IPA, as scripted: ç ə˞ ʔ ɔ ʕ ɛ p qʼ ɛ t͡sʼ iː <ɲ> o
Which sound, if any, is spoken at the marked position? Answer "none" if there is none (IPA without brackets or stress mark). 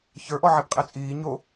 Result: ɲ